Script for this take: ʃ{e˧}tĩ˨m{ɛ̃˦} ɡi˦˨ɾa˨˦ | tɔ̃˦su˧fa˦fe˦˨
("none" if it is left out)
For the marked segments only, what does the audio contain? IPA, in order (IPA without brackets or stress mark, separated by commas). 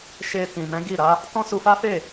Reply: e˧, ɛ̃˨˦